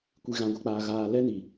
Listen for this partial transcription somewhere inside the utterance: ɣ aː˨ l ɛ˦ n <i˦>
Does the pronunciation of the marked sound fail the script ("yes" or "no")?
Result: yes